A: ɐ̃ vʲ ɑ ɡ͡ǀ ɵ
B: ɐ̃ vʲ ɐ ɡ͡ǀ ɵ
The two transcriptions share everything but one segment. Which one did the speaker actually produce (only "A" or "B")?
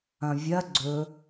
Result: B